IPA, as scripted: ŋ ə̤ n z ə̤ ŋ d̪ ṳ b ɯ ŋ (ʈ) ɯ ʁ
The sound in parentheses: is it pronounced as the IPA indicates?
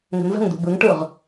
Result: yes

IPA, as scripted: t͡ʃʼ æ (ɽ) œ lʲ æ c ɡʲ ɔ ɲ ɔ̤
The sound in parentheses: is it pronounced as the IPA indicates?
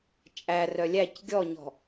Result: no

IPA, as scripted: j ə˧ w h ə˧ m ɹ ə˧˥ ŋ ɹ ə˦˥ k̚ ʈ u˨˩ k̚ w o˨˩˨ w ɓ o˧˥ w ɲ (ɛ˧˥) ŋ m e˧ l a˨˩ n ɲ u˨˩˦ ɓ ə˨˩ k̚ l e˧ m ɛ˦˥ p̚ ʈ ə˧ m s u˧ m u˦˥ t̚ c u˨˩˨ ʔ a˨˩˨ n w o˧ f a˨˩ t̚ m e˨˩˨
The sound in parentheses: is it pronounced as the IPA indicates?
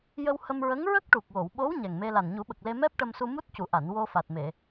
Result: no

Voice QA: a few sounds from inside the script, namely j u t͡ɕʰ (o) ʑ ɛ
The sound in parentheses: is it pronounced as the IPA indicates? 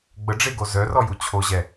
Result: yes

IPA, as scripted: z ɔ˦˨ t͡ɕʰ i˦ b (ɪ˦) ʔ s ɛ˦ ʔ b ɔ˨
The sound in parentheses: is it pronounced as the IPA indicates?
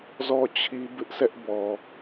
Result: yes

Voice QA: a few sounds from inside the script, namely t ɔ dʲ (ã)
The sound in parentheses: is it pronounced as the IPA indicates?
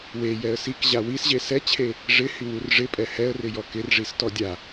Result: no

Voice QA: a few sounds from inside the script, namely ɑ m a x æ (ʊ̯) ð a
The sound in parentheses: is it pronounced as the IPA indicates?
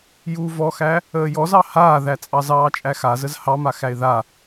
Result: no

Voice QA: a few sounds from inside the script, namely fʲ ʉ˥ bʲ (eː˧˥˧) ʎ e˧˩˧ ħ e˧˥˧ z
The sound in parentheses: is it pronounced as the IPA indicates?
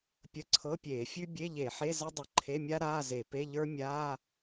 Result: no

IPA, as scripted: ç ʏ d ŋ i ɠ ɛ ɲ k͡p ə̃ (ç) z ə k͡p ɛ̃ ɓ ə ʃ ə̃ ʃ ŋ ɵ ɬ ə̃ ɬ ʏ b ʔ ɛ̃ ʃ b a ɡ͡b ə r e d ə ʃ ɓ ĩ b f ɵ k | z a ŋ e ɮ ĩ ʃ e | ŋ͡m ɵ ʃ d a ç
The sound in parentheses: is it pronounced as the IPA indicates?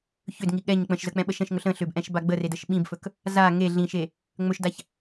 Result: no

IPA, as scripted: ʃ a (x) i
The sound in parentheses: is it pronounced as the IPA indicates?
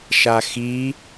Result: yes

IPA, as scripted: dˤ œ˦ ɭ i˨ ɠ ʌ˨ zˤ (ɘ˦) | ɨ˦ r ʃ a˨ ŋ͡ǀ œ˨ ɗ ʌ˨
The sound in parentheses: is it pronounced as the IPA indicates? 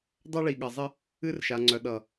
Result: yes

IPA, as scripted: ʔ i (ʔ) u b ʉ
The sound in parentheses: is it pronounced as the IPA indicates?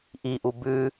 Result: yes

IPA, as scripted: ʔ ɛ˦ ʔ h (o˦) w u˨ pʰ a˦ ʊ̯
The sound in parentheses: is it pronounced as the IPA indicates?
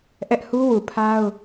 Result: no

